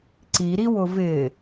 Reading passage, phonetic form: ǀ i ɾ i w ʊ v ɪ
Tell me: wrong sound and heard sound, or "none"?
none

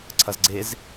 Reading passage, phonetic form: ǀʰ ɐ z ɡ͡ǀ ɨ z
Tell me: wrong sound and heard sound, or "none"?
ɨ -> e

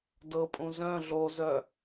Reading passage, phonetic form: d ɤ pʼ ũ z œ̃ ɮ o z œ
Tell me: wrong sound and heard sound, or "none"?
none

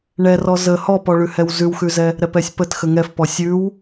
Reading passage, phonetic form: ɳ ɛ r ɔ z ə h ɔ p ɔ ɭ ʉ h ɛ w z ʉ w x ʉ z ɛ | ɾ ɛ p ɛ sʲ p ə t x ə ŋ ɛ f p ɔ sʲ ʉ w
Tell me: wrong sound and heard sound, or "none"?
none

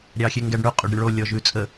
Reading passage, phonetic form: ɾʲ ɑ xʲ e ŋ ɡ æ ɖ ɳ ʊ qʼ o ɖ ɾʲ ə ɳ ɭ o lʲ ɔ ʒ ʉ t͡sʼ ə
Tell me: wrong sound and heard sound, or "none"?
none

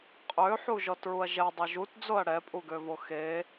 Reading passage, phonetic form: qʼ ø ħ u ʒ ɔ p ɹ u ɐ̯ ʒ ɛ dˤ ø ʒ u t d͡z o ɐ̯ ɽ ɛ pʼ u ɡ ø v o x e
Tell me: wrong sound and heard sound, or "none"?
p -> t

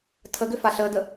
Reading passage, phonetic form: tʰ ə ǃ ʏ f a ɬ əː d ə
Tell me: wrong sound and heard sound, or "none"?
ǃ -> ɡ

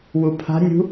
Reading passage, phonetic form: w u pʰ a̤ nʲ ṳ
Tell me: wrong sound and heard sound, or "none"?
none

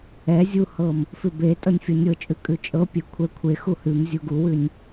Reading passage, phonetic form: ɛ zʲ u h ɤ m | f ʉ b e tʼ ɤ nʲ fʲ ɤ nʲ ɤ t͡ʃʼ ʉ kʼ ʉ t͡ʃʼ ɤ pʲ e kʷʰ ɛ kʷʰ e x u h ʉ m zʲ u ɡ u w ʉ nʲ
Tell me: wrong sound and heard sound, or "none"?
none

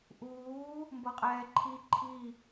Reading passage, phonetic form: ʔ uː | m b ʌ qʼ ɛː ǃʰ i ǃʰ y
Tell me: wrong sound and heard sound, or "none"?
y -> i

